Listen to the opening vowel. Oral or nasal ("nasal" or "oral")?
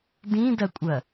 nasal